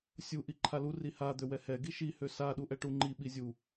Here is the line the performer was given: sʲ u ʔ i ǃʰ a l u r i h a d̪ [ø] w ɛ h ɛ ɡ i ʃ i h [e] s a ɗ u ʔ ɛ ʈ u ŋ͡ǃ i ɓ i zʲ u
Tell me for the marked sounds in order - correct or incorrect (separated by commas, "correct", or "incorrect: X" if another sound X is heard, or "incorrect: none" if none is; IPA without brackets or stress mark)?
correct, incorrect: ø